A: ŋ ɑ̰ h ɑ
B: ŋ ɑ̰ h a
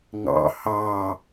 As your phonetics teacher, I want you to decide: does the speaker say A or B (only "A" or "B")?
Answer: A